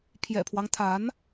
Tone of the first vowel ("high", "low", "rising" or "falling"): low